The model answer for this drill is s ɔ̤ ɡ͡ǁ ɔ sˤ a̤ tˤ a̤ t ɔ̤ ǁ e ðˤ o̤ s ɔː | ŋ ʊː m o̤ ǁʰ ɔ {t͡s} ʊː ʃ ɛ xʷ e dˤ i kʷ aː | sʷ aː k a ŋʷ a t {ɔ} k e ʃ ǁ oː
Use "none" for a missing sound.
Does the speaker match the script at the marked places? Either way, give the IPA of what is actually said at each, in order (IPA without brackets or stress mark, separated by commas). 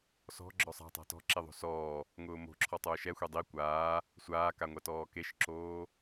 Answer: tˤ, ɔː